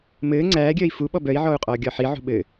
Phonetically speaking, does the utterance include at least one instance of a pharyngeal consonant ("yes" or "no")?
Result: yes